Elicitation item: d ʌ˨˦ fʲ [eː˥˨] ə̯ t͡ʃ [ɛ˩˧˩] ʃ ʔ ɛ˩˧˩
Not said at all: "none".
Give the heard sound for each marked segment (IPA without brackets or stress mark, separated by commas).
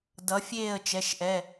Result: eː˥˨, ɛ˩˧˩